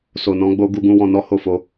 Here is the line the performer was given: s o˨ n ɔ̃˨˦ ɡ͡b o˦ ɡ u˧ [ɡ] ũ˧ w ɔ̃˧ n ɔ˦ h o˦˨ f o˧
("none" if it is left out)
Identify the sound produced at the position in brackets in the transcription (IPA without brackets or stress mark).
ɡ